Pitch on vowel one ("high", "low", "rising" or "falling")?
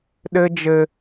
high